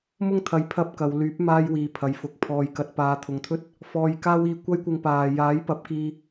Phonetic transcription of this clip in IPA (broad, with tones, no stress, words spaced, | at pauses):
mʊ˥ŋt̪ʰɐ˨˧j pʰɐ˥p̚kɐ˨˧w lyː˨˥p̚ maː˥jwiː˨˧pʰɐ˨jfʊ˨k̚ pʰɔː˨jkɐ˨t̚ paː˨˧t̪ʰʊ˨ŋt̪ʰɵ˥t̚ | fɔː˧jkaː˥w iː˧kʷɐ˥jkʷɪ˧ŋ paː˨ jaː˨˥jpɐ˨˥p̚kiː˧